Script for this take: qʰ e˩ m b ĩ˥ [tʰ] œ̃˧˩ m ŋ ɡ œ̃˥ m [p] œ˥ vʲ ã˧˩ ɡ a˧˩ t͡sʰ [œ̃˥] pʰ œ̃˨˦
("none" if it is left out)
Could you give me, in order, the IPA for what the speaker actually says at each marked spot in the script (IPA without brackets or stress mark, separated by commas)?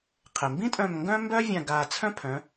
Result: tʼ, b, œ̃˥